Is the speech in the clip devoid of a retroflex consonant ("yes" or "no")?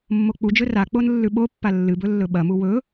yes